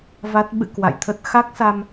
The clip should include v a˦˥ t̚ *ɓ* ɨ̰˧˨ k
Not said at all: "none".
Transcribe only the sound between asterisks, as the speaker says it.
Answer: ɓ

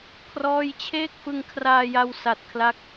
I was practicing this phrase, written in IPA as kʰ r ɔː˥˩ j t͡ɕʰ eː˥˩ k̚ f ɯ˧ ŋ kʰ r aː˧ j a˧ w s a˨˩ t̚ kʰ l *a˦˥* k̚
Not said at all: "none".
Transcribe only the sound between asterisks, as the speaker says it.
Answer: a˦˥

